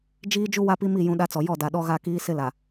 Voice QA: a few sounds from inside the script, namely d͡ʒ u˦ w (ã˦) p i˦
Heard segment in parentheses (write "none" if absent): a˦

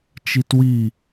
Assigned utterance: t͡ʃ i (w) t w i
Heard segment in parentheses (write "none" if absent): none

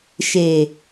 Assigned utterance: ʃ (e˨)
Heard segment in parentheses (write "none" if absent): e˨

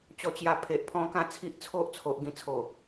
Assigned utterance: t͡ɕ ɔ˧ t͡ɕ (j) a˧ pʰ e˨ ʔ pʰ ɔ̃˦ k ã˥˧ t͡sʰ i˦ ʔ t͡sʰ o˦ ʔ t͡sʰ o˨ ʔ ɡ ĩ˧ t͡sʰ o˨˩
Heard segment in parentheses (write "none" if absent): j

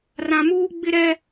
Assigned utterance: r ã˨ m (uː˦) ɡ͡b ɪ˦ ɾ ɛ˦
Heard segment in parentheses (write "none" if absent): uː˦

